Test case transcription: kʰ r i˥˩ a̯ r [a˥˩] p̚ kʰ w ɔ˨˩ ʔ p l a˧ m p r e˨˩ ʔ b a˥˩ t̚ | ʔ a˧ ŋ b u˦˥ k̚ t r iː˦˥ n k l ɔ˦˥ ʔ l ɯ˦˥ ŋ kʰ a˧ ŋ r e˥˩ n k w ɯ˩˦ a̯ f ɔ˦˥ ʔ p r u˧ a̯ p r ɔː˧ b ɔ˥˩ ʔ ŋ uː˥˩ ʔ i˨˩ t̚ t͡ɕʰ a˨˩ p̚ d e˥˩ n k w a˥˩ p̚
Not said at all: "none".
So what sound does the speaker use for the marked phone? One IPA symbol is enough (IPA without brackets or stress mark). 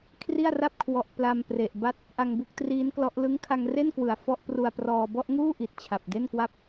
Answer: a˥˩